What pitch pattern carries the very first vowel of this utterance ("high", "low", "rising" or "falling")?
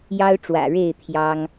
high